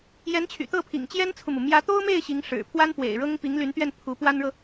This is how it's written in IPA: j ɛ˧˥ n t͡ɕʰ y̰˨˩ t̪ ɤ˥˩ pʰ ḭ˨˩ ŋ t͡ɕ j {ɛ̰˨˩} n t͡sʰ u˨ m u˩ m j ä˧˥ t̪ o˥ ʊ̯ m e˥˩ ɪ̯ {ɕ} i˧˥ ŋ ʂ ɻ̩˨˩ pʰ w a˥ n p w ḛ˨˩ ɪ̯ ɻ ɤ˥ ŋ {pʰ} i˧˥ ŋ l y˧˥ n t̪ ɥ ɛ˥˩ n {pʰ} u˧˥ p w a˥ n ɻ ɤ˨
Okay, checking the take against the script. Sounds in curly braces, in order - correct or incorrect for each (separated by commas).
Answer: incorrect, correct, incorrect, correct